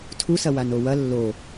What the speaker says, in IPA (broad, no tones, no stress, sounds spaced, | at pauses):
tʰ u s ɐ w a n o w ɐ lː o